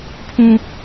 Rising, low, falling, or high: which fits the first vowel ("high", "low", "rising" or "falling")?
low